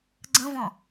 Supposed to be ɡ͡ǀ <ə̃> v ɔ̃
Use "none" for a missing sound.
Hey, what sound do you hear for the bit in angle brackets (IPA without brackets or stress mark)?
ə̃